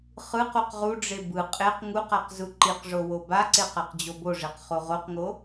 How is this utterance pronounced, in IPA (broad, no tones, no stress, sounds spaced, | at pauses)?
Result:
χ ɯ q u q ʁ u ɖ͡ʐ e b ɯ qʼ e q ŋ u q a q z u ǃ i q ʐ o w o b a ǀ e q a q d͡ʑ o b o ʐ e q χ o ʁ o q ŋ o